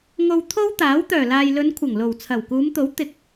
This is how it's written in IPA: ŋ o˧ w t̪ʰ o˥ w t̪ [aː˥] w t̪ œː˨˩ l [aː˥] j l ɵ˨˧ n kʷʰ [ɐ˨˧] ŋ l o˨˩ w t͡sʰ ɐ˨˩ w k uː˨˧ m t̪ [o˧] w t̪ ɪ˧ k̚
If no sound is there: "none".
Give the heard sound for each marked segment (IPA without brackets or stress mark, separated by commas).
aː˨˥, aː˨, ɐ˨˩, o˨˥